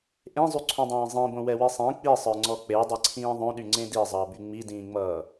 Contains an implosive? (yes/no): yes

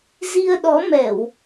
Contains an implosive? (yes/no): yes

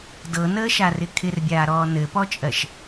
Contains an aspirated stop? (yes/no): yes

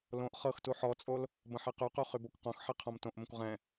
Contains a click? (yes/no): no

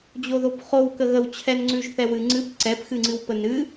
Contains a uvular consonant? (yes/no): yes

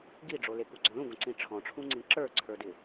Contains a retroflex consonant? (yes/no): yes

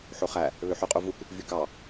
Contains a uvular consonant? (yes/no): yes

